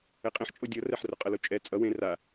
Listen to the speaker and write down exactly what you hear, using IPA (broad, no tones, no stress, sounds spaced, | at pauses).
ɛ qʼ ẽ ħ t͡ʃʼ o dʲ ʌ r ɛ ħ r o qʼ ʌ l o t͡ʃʼ ɛ t͡sʼ ʌ w ẽ r a